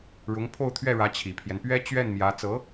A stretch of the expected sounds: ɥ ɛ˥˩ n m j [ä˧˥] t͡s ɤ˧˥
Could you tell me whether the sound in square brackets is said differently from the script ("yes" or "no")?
no